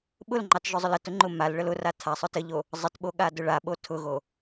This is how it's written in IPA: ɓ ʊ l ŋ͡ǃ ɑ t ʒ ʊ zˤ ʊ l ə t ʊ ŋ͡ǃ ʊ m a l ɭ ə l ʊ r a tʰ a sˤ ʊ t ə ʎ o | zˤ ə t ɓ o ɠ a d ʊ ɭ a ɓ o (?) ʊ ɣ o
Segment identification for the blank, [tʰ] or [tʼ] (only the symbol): tʰ